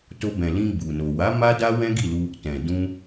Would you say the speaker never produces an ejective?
yes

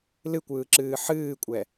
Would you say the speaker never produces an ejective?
no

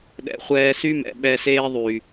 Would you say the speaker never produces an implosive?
no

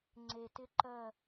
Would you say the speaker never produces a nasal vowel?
yes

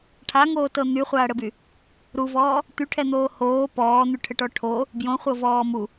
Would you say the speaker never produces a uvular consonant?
no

